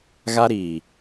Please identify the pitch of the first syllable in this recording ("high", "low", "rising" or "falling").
high